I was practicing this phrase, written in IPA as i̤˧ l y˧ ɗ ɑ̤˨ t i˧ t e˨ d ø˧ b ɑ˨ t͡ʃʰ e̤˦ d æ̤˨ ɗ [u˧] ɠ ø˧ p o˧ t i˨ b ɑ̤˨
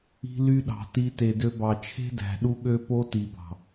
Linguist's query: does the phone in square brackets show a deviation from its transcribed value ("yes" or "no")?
no